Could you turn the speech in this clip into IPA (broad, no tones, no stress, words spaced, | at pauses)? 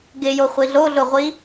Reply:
ɡɪjoχʷi ɮoɮʊʁʷi